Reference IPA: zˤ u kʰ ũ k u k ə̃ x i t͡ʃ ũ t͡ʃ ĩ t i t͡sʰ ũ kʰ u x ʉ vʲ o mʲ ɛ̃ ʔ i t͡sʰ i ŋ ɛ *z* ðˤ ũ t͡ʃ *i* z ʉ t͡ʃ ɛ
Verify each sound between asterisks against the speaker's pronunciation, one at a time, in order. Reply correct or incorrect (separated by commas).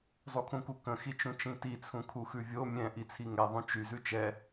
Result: incorrect, incorrect